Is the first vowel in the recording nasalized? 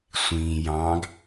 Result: yes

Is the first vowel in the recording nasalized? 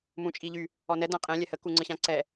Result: yes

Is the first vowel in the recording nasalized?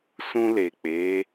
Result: yes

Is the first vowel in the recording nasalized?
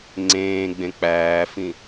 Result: yes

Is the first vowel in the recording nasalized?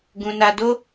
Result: yes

